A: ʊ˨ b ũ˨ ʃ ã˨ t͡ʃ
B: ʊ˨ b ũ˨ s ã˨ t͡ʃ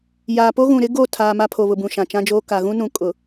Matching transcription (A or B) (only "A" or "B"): A